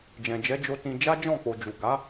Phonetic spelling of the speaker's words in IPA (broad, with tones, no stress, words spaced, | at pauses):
d͡ʒɛ̃˨d͡ʒɛ˨˦d͡ʒo˧ tĩ˧ d͡ʒa˦d͡ʒɔ̃˦˨ k͡po˨d͡ʒu˨ɡa˨˦